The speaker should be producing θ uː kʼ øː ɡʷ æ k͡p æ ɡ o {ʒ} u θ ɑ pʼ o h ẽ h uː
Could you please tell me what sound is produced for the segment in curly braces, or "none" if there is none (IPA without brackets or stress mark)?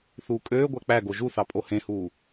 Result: ʒ